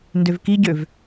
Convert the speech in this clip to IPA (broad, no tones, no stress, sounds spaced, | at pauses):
n d ø v k i ɟ ø v